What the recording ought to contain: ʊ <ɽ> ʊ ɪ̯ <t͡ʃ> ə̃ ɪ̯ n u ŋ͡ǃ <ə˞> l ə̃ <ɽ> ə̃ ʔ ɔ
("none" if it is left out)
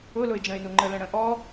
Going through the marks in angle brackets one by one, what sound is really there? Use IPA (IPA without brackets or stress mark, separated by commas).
l, d͡ʒ, ə, ɽ